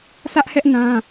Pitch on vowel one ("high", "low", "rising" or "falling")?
high